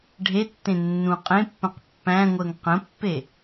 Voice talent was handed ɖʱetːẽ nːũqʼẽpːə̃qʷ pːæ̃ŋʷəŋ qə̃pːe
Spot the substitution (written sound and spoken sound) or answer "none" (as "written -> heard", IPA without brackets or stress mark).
qʷ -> q